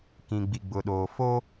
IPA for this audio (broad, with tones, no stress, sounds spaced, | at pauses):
k ĩ˨ ɡ͡b i˨ ɡ͡b ʊ˨ ɗ oː˨ f o˦